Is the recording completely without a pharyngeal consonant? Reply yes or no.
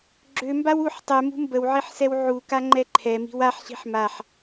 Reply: no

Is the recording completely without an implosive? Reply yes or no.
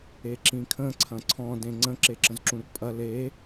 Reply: yes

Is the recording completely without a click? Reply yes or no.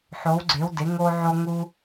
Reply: no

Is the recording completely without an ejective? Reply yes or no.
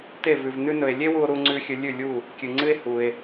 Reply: yes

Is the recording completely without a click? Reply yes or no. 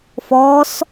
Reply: yes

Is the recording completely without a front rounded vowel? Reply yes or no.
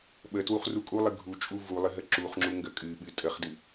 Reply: yes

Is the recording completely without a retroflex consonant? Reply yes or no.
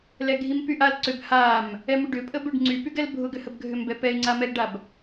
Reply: no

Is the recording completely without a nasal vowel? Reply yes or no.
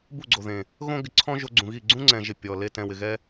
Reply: no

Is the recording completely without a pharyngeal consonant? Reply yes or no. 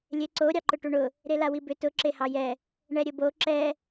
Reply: yes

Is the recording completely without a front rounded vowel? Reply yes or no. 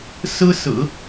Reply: yes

